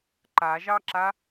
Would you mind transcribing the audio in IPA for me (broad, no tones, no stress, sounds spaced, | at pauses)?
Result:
ǃ a ʒ ɑ ǁ a